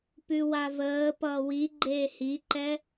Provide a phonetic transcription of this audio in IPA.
p ʉ w a v əː p ʌː w i ɡ͡ǃ eː h i ǃ ɛ

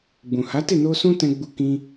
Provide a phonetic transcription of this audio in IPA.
ɡ͡b ũ˨ h a˨˦ t e˦˨ n o˧ s ũ˦ t ɛ̃˧ ɡ͡b u˧ k ĩ˧

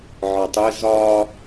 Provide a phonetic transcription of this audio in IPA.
ʕ ɒ tˤ ɪ z ɒ

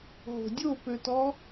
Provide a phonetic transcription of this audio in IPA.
ɦ o̤ dʲ o p ø t ɔ

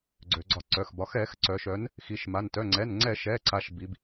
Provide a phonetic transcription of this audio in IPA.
ɡ͡ǀ ø˩˧ ɡ͡ǀ ɒ˧˩˧ ǀ œ˩˧˩ x b ɒ˩˧ x ɛ˧˩˧ x ǀ œ˩˧ ʃ œ˩˧ n | x i˩˧ ʃ m a˩˧˩ n t œ˩˧˩ ŋ͡ǀ ɛ˩˧˩ n ŋ͡ǀ ɛ˧˩˧ ʃ ɛ˩˧˩ ǀ a˩˧ ʃ b i˩˧ b

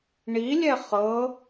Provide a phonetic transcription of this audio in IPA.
ɳ i lʲ ɛ χ ɤ

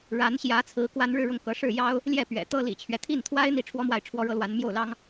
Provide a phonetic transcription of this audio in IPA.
ɻ a˧˥ n ɕ j ä˧˥ t͡sʰ ɹ̩˧˥ k w a˥ n ɻ ɻ̩˥˧ ɻ ʊ˥˩ ŋ k ɤ˧˥ ʂ ɻ̩˥˩ j ɑ˥ ʊ̯ | l j ɛ˥˩ p ɥ ɛ̰˨˩ t̪ ɤ˥ l ḭ˨˩ t͡ɕʰ ɥ ɛ˦ t̪ʰ i˥˩ n t̪ʰ w a˥ ɪ̯ n̪ i˥˩ ʈ͡ʂʰ w ɔ˥ m w a˥˩ ɪ̯ ʈ͡ʂʰ w ɔ˥ ɻ ɤ˥ l w a˧˥ n m j o˥˩ ʊ̯ l ɑ˥ ŋ

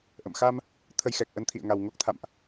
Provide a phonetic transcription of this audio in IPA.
ʔ ə̰˧˨ m x a˧ m | t̪ʰ ə˧ j x ɛ˨˩ k̚ ʔ ə˨˦ n t̪ʰ ḭ˧˨ ə̯ ŋ a˨˩ w ŋ o˦˥ k̚ t̪ʰ a̰˧˨ m ʔ

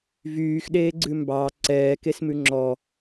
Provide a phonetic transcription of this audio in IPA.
v yː x ɗ eː ɡ͡ǀ ʉ m b ɑ ǀ ɛː k e s m ʉ ŋ͡ǁ ɔ

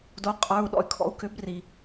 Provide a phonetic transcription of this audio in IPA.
d o˩˥ qʼ ə˞˩˧˩ u̯ ɗ ɔ̰˩ y̯ kʰ ɔ̰˩˥ u̯ k ʏ˩˥ b r i˩

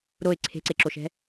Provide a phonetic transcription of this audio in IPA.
ɾ o ɪ̯ ǀʰ e̤ ǀ e ǁ o ʃ ɛ̤

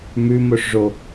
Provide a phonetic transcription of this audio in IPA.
m ʉ m o ʂ ʐ o

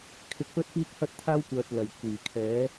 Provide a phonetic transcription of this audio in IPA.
kʰ ɪ˧ k̚ p ɵ˥ t̚ p iː˥ k̚ h ɐ˥ t̚ t̪ʰ aː˥ w kʷ œː˨ t̚ l ɐ˨˩ j kʷ iː˨˩ kʰ ɛː˨˥

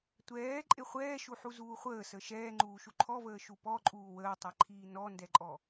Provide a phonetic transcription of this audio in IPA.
tʷ ɛː ǃʼ e χʷ ɛː ʃ u ħ u z uː χʷ əː s ə ʃ ɛː ŋ͡ǃ uː ʃ u ǃʰ ɔ v əː ʃ u p ɔ ǃʼ uː w əː tˤ ɛ ǃʰ iː n ɔ n d ɛ ǃʼ ɔ

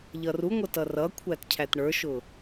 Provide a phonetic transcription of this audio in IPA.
ʎ ʌ r u ŋʷ ʌ t ʌ r ʌ kʷʰ æ t cʰ æ t ɳ ə˞ ʃ ʊ

